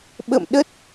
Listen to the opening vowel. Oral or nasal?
oral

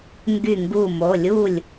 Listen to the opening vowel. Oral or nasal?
oral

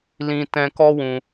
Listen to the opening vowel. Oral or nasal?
nasal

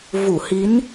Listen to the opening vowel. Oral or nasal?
oral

